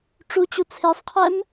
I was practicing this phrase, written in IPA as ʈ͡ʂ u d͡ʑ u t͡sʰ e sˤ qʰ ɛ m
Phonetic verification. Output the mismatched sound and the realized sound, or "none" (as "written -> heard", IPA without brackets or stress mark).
d͡ʑ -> t͡ɕ